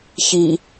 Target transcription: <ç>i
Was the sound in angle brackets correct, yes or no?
yes